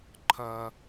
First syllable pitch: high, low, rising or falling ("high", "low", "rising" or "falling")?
high